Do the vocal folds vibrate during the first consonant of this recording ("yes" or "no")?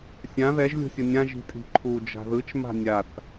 no